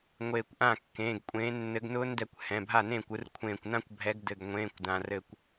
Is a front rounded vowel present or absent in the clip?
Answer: absent